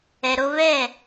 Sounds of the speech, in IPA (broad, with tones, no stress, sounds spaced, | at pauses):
ɛ˨ ɾ o˧ v ɛ˦˨